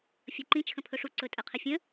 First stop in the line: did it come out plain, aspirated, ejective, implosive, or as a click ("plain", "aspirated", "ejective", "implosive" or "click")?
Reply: click